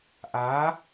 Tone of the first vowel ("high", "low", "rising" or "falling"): rising